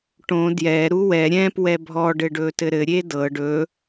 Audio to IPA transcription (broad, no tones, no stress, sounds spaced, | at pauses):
ʈ õ d j ɛ ɾ u w ɛ ɾʲ ɛ̃ p w ɛ bʱ ɔ ɖ ɘ ɖ ɵ t ɘ ɾ ɘ ɾʲ e d ɤ ɖ ɵ